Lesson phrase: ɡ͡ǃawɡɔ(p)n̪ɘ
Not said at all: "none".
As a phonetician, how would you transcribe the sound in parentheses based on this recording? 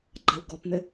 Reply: p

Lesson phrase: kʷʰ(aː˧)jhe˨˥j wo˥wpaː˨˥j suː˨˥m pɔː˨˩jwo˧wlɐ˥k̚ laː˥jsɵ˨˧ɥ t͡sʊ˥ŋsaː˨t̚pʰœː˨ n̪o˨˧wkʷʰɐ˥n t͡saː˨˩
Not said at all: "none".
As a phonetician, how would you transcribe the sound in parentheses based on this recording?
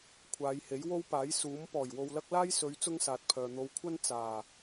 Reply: aː˨˧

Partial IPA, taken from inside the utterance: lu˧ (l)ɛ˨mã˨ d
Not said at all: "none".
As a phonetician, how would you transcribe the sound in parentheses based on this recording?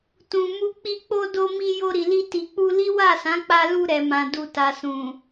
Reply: ɾ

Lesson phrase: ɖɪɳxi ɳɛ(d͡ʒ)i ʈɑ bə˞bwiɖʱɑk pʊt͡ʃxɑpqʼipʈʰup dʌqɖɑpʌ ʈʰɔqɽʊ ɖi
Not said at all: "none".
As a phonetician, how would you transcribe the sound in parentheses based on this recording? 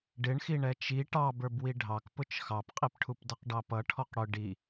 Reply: t͡ʃ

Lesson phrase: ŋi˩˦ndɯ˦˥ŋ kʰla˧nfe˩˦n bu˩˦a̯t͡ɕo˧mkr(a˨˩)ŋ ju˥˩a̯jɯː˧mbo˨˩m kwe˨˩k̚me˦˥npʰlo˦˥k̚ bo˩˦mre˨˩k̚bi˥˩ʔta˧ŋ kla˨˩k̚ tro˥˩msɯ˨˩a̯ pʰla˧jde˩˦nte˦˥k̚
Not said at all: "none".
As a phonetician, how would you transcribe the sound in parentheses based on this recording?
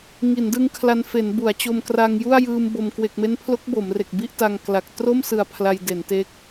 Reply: a˧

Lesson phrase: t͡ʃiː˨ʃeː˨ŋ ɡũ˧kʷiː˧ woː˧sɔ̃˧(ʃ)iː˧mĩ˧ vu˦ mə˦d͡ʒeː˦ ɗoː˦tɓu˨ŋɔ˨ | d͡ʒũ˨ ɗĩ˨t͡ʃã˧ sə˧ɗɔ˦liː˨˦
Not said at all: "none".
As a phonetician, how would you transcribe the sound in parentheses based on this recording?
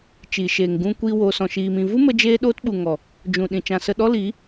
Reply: ʃ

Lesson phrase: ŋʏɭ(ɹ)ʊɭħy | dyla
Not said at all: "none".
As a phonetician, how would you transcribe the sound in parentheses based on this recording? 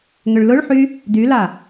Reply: l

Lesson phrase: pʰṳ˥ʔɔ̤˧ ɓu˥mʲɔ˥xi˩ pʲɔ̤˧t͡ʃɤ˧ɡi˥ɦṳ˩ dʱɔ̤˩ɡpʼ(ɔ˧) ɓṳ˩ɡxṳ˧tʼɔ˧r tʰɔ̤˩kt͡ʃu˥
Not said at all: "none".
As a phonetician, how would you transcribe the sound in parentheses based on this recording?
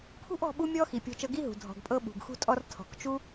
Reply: ɤ˧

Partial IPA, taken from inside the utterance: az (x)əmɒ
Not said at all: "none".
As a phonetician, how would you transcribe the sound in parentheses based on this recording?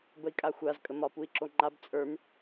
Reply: kʼ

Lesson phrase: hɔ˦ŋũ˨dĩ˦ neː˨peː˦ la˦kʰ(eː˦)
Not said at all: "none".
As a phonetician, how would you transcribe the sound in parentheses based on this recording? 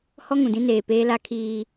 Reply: iː˦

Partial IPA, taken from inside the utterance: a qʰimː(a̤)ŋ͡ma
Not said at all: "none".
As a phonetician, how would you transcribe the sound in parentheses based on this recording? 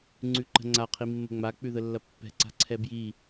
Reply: ə̤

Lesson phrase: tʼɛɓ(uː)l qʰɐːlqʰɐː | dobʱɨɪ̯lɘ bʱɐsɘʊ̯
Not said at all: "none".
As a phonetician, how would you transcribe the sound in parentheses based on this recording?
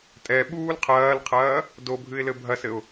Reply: uː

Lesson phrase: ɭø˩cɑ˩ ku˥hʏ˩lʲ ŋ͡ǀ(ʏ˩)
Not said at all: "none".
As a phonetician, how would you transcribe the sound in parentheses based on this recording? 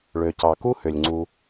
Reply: u˩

